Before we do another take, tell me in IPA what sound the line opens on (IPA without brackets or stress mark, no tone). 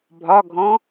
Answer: bʱ